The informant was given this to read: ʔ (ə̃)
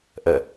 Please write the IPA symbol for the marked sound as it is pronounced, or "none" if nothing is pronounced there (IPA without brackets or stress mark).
ə